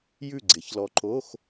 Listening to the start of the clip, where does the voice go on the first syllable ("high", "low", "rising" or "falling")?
falling